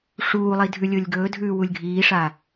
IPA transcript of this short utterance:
ʂ uː lˠ i dʱ ʉ lʲ o lʲ ɡ ɵː dʱ ʉː w u lʲ ɡʱ iː ʂ a

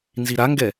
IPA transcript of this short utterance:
n z i ɾ a ŋ ɡ ɛ

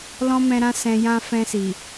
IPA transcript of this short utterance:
l ɔ̃˦ m ɛ̃˧ ɾ ã˦ s ɛ̃˧ j ã˦ f ɛ̃˧ s i˨

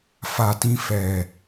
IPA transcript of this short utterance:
f a˨ t ĩ˧ f ɛ˨

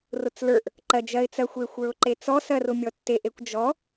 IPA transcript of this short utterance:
r ʊ t͡s l ə˞ ʔ | ǃ ɜ d͡ʒ ɜ ɪ̯ t͡s ɜ xʷ e xʷ ə˞ ʊ̯ ǃ e t͡s ɔ s ɜ r ʊ mʲ ɔ tː e ʔ e kʷ d͡ʒ ɔ

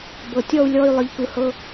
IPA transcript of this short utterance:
b ɤ˨ tʲ ɔ˦˨ u̯ lʲ ɔ˦˨ y̯ lˠ ɯ˨ ʎ k ɯ˨ h ɤ˧

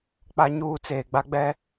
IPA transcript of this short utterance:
k͡p a˦ ɲ uː˦ t͡s eː˨ ɡ͡b a˦ ɡ͡b ɛ˦

